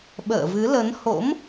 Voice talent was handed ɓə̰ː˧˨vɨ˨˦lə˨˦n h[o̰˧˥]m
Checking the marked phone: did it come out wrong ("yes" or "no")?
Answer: no